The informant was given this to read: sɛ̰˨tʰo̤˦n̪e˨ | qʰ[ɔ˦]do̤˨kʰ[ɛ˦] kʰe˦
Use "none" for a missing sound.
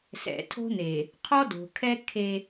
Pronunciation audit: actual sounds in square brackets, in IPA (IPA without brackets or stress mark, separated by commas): ɔ˦, ɛ˦